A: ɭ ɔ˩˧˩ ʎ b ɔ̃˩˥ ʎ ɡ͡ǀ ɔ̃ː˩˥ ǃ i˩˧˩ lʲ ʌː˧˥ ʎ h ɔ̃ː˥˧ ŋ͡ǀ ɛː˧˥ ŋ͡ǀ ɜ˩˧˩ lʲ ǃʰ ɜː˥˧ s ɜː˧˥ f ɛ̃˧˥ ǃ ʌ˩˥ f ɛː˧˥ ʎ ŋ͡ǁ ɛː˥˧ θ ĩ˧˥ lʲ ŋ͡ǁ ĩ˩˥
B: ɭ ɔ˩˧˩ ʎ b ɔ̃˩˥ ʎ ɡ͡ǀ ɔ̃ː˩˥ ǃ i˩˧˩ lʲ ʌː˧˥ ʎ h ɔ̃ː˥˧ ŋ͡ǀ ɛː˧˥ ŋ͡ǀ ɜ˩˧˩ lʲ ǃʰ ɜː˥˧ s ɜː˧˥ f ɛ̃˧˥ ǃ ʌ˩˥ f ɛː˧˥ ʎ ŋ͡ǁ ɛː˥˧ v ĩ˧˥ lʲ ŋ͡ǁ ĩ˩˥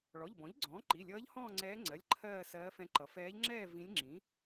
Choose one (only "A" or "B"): B